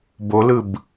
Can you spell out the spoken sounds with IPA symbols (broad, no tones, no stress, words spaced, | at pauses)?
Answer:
bolɯb